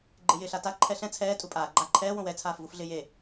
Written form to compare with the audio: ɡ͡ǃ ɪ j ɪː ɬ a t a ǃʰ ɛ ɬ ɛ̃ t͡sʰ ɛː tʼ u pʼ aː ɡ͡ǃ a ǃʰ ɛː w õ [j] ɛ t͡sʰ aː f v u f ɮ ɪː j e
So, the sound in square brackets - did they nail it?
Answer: no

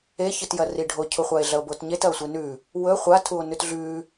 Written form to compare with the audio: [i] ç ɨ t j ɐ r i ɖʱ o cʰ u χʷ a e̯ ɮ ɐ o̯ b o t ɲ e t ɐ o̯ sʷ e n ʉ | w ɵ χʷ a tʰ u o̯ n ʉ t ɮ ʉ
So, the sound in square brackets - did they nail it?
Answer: no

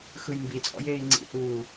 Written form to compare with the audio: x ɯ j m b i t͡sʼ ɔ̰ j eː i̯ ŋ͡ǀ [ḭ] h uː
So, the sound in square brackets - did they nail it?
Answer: yes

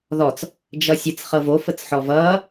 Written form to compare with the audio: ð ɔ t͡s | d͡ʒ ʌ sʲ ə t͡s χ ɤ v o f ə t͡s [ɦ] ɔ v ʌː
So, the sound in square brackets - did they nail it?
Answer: no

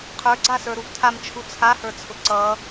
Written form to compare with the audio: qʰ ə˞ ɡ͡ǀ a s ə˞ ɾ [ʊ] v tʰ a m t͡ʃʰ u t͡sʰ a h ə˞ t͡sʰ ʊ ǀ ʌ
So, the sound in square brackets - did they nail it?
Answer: no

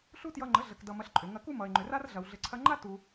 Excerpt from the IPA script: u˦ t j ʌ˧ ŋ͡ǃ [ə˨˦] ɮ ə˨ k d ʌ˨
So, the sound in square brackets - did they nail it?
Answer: yes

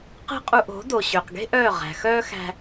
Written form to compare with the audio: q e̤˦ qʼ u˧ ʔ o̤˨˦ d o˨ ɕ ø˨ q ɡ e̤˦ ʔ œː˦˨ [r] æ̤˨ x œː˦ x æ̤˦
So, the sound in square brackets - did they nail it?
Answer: no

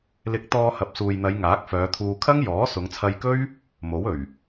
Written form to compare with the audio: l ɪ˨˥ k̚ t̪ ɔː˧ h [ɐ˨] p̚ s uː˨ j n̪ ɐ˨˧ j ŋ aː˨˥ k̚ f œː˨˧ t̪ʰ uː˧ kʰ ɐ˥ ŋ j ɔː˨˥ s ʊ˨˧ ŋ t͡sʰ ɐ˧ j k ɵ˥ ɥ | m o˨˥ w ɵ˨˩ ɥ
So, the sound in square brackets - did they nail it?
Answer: yes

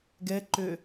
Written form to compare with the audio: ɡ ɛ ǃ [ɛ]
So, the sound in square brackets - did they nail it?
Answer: no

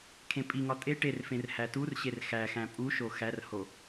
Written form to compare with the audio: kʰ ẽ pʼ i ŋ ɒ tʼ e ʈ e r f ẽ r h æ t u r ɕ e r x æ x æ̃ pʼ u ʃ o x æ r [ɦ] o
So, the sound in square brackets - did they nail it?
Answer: no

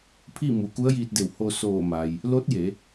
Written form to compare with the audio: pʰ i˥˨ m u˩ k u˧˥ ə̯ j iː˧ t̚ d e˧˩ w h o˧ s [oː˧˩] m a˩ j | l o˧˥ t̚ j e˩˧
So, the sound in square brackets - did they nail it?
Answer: yes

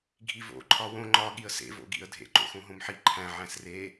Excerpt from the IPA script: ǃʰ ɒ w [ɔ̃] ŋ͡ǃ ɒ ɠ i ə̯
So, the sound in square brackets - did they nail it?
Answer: no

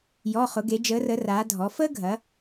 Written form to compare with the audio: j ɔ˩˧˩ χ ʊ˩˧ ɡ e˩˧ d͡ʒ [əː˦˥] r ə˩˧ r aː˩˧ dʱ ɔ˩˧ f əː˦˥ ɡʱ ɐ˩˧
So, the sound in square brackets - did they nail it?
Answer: no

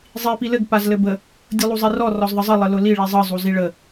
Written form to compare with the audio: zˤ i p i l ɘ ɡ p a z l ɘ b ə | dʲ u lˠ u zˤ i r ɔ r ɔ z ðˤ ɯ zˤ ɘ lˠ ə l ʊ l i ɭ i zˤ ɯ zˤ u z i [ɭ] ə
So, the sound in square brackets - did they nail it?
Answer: yes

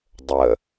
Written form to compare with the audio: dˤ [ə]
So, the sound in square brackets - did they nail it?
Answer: yes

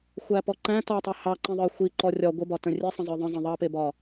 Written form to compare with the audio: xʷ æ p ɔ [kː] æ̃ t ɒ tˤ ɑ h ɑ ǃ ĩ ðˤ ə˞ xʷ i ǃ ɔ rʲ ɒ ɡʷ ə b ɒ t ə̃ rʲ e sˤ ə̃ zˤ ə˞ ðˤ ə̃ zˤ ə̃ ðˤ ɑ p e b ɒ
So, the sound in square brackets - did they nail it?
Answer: no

